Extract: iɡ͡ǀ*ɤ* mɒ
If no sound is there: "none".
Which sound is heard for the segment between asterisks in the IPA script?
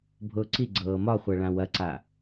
ɤː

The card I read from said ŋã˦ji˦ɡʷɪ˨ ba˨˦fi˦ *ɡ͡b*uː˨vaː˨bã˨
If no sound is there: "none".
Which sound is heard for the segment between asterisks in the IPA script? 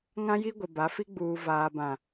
ɡ͡b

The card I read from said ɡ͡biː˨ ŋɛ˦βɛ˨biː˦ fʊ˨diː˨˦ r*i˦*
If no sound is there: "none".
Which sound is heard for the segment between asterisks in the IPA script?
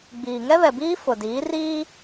iː˦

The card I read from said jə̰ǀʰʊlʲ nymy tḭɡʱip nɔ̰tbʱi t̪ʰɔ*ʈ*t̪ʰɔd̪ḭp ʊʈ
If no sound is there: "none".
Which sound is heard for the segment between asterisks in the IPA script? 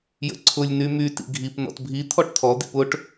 ʈ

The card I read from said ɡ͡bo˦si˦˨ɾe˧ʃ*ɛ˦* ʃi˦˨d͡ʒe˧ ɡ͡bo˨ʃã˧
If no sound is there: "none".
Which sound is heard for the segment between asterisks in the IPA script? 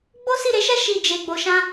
ɛ˦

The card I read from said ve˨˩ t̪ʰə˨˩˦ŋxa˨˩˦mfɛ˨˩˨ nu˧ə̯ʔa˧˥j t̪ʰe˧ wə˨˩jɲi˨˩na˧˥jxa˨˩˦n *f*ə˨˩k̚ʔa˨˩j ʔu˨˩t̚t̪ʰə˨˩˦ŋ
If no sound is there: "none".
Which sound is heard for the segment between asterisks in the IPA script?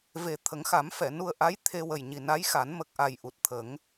m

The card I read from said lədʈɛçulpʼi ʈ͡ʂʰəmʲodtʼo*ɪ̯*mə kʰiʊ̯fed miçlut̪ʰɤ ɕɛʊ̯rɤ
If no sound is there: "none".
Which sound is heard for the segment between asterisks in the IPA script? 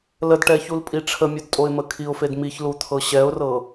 ɪ̯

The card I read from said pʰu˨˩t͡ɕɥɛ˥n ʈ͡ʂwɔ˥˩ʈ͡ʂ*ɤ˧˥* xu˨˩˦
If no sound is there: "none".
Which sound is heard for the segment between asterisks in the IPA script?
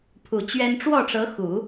ɤ˧˥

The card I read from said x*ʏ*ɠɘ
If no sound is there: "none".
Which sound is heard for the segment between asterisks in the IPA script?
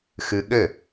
ɨ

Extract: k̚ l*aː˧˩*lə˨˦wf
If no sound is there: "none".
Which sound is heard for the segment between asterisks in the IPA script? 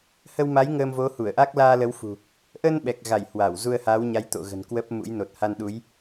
aː˧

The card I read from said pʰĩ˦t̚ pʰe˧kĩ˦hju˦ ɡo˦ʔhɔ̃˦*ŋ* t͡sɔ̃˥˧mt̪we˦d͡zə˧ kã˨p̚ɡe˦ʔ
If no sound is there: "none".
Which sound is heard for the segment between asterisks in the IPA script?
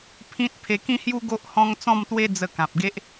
ŋ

